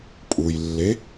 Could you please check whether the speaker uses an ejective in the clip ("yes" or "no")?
yes